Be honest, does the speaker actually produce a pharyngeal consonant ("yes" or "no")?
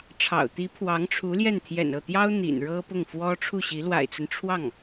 no